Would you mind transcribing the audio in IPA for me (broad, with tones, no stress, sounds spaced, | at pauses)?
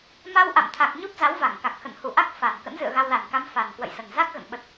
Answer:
m a˧ w ʔ a̰˧˨ m t̪ʰ a˨˩ k̚ ɲ u˦˥ p̚ z a˨˦ w v a˧˩ ŋ k a˨˩ k̚ x ə̰˧˨ n h u˧˩ ʔ a˦˥ k̚ f a˨˩ n k ə̰˧˥ n z ɨ̰˧˨ ə̯ ɣ a˧ w l a˨˩ n k a˧ m f a˨˩ n k w ə̰˧˨ j s ə˨˩ n z a˦˥ k̚ ɣ ə̰˧˨ n ɓ ə˨˩ t̚